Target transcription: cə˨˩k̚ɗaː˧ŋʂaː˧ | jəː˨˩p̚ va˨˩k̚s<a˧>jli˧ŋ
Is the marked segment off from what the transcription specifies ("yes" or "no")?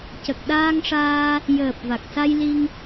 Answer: no